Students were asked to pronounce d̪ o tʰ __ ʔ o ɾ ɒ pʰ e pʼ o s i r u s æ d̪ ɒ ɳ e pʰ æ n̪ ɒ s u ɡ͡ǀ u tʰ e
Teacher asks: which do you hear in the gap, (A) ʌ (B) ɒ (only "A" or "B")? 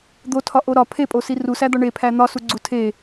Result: B